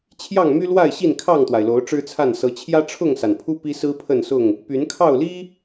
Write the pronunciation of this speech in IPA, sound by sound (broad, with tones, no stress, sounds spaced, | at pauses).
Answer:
t͡ɕʰ j ɑ˥˨ ŋ m y˦ l w a˥˨ ɪ̯ ɕ i˥˨ n kʰ ɑ˥˨ ŋ t̪ w a˩ ɪ̯ l o˨˦ ʊ̯ ʈ͡ʂ ɻ̩˦ t͡sʰ a˥˨ n s ɤ˨˦ t͡ɕʰ j ä˦ ʈ͡ʂʰ ʊ˥˨ ŋ s a˩ n pʰ u˦ p i˦ s ɹ̩˦ pʰ ə˥˨ n s ʊ˥˨ ŋ | p y˨˦ n kʰ ɑ˥˨ ʊ̯ l i˦